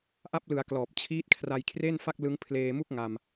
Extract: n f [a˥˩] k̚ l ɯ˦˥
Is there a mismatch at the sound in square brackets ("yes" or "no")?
no